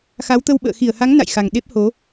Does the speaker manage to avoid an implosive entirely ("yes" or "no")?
no